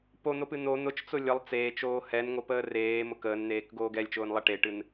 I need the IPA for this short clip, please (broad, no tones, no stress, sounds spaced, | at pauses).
p o n̪ o p ɨ n̪ o n̪ ʊ t͡ʃ t͡s ʊ lʲ ə lˠ t͡s eː t͡ʃ oː h ɛ n ŋ o p əː r eː m ʊ k əː n n̪ eː k ɡ oː ɡ ɛ lʲ t͡ʃ ʊː n lˠ ɛ ʈ e ʈ ɨ n